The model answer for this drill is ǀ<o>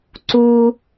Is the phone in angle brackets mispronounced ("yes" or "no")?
yes